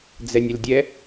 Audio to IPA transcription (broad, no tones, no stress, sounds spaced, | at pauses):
d͡z ɛ nʲ ɪ l dʲ ɛ